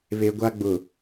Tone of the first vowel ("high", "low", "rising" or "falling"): high